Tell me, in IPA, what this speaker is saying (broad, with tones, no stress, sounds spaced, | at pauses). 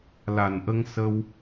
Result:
l a˨˩ n ʔ ə˧ ŋ s ə˧ w